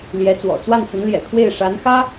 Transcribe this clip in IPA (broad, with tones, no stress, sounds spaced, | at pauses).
l j ɛ˧˥ t͡s w ɔ̰˨˩ t͡s w a˥˩ n t͡s ə˧˥ n l j ɛ̰˨˩ kʰ w e˥˩ ɪ̯ ʂ a˧˥ n x ä˥